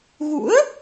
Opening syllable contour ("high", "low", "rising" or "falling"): rising